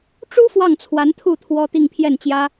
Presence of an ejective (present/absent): absent